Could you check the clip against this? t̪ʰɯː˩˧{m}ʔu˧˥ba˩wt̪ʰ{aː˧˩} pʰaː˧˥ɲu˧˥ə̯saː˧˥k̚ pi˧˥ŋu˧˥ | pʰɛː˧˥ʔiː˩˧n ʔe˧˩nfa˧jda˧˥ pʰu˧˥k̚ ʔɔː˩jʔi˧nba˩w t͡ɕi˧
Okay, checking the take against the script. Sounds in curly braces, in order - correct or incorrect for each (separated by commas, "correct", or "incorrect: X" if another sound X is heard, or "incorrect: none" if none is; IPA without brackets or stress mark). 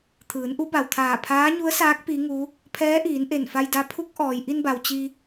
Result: incorrect: n, correct